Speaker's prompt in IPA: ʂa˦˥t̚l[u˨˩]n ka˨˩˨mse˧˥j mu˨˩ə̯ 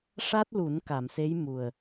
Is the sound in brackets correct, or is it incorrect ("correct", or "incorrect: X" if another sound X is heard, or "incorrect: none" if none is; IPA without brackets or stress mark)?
incorrect: u˨˩˦